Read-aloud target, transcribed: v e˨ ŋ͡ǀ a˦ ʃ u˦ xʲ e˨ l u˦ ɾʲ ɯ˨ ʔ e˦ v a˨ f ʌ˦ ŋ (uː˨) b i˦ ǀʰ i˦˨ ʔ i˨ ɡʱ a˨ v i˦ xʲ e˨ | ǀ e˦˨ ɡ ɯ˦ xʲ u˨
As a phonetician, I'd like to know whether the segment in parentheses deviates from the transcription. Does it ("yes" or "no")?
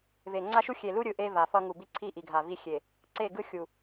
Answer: yes